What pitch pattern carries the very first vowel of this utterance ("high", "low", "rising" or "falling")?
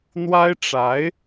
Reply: high